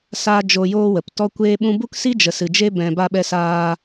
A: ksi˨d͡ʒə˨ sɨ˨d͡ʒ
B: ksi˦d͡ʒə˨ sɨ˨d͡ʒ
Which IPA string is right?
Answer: B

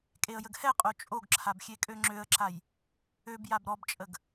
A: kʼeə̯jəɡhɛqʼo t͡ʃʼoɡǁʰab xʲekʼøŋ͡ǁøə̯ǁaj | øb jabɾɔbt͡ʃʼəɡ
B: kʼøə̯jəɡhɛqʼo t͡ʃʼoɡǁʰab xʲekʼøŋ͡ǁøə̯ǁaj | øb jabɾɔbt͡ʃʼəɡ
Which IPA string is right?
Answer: A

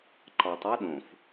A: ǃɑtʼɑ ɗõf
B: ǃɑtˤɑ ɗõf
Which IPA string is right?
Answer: B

